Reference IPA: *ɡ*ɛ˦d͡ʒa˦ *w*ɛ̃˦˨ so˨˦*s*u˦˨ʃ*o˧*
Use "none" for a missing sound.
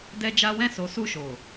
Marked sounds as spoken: d, w, s, o˨

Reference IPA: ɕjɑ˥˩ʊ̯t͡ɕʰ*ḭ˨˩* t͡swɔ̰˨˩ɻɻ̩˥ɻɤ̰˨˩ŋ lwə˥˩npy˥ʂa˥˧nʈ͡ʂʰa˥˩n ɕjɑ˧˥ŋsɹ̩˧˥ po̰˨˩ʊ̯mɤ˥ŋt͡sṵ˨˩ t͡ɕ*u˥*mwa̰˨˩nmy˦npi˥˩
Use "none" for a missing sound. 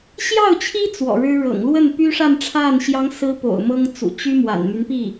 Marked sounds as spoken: i˥, y˥

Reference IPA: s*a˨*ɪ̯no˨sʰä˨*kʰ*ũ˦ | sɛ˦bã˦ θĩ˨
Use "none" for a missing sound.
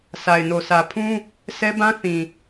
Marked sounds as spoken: a˨, pʰ

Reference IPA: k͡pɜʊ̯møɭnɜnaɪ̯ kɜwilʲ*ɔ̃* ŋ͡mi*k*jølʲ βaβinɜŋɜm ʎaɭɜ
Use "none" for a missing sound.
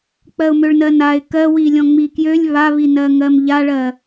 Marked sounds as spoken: ɔ̃, k

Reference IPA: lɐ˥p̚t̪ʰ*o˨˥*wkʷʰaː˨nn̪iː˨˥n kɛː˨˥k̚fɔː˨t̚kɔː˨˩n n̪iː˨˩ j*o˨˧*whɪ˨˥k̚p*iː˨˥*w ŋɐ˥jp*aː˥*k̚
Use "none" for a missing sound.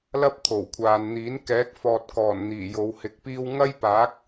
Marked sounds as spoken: o˨˩, o˨˧, iː˥, aː˨˥

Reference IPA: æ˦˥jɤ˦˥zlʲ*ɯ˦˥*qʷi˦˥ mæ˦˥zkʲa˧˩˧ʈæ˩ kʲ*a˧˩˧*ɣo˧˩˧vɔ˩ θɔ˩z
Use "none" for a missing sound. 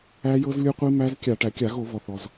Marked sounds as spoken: ɯ˦˥, a˧˩˧

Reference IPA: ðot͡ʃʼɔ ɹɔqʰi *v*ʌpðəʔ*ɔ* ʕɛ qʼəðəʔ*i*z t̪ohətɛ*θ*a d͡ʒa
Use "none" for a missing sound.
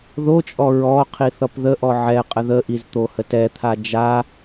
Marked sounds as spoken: θ, ɔ, i, t̪ʰ

